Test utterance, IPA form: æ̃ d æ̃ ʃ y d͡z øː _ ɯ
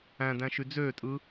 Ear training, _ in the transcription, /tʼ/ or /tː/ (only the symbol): tʼ